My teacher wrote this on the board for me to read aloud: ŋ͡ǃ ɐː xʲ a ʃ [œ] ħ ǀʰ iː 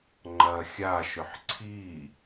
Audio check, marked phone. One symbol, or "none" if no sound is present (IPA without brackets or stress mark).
œ